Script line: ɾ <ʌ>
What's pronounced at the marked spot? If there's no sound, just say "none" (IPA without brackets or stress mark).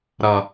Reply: ʌ